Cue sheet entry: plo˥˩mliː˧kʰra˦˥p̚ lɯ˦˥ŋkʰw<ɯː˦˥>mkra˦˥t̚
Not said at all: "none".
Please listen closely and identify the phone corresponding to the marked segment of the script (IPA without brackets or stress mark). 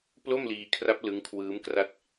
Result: ɯː˦˥